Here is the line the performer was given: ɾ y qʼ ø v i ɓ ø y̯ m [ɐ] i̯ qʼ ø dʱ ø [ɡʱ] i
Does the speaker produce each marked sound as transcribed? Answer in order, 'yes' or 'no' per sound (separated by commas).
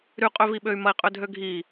yes, yes